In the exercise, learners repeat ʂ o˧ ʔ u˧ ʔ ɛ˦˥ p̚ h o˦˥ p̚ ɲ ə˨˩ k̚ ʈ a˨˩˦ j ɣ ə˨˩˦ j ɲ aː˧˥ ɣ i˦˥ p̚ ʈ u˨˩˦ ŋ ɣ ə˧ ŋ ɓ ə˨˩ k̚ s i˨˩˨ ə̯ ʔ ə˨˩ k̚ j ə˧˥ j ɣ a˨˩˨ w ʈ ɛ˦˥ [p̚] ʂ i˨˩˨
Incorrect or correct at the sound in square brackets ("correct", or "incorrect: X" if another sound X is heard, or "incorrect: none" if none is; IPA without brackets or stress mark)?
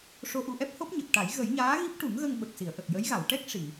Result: incorrect: k̚